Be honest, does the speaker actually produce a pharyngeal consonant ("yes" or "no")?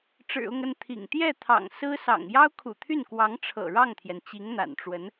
no